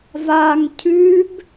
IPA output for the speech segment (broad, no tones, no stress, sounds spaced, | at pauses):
v a ŋ cʰ ʉ b